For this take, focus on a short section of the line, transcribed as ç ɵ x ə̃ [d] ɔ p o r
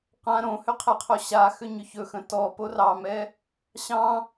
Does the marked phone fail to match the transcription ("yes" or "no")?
yes